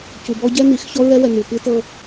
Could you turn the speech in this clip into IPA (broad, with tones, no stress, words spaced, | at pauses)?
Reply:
cu˨bɔ˦ ɟɛ˦n̪i˨˦x çɔ˦ɹɛ˦wɛ˨ n̪u˨pɯ˦tɤ˦